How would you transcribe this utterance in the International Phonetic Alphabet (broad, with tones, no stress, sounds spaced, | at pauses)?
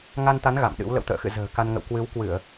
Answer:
ŋ a˧ n t̪ a˨˦ n ɣ a̰˧˨ m ɗ ɨ̰˧˥ w l ə̰˧˨ w t̪ ə̰ː˧˨ x ɨ̰˧˨ z ə̤ː˨˩ k a˧ n ŋ ə̰˧˨ w k w ɨ˨˦ w k w ɨ˧˩˨ ə̯